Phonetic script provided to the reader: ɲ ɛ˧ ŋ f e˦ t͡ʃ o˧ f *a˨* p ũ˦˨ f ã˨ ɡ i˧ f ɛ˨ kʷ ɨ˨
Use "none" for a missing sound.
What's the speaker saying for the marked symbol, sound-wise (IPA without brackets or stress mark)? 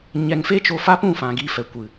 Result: a˦